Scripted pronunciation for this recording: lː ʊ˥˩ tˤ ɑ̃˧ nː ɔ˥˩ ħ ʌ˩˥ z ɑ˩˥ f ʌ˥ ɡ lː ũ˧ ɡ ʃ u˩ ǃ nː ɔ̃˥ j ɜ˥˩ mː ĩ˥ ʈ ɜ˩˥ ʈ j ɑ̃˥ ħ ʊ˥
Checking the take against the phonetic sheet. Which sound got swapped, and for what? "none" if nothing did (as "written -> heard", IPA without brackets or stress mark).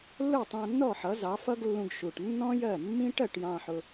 ǃ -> ʈ